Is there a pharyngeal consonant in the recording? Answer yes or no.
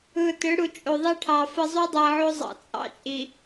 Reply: yes